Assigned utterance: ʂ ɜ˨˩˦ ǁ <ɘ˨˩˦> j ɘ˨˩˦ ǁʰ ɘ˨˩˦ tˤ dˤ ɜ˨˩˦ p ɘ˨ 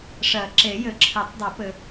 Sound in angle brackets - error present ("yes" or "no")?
yes